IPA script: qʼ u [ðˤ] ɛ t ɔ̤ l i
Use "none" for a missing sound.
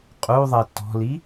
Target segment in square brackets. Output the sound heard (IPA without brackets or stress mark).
ðˤ